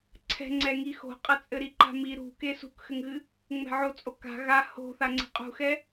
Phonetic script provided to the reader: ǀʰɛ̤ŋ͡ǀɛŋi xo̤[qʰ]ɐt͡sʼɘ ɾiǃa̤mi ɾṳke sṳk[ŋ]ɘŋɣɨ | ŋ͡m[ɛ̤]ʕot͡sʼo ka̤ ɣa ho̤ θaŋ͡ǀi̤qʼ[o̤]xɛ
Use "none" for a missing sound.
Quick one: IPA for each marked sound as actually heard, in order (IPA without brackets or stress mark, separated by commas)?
qʼ, x, ɛ̤, ṳ